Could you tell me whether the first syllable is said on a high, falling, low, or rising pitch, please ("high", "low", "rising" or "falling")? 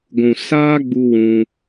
low